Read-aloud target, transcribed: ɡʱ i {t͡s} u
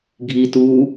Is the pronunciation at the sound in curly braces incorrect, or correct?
incorrect